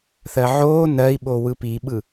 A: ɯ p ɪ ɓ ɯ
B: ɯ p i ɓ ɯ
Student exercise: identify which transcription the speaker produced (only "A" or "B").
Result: B